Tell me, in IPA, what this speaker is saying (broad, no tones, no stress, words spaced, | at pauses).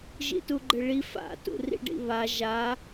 ʒḭtuɡ͡ǃɘɭi fa̰ tṵrḭɖḭβa ʒa